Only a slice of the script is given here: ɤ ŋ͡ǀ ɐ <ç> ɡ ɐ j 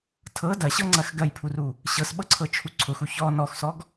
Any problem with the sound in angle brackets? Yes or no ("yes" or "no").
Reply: yes